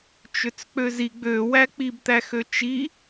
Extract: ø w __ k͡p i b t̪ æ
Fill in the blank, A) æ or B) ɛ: A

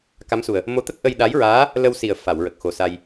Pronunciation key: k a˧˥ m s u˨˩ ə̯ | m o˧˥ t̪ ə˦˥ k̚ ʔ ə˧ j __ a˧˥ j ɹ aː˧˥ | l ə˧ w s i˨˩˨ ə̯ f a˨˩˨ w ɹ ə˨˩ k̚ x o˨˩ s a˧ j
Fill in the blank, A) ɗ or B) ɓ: A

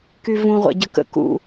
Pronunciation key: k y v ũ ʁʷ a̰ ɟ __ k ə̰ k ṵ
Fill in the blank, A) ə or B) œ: A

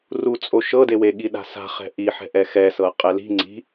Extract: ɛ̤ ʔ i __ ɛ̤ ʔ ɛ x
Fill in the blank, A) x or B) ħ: B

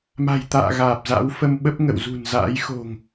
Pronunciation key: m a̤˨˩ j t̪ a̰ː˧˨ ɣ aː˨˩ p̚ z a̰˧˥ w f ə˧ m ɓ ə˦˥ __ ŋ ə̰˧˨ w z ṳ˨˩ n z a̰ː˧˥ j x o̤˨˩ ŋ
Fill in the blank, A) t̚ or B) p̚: B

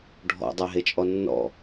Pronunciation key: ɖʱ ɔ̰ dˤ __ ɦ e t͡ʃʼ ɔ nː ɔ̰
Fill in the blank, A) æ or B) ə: A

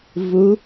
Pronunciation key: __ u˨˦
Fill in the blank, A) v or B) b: A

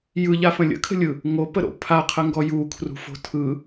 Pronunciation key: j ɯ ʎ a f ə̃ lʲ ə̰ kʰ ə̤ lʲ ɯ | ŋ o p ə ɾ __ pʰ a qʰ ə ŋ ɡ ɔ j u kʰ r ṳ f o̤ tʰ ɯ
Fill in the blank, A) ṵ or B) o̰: B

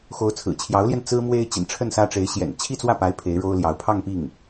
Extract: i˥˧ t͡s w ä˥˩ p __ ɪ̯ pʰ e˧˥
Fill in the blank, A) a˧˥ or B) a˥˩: A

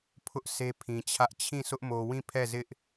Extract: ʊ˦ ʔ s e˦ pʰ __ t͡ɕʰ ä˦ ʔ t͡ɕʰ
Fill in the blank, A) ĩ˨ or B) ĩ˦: A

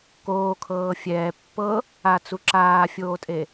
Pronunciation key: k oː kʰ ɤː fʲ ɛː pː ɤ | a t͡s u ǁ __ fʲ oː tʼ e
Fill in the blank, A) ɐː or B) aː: B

